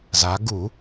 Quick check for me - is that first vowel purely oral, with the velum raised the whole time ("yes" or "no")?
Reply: yes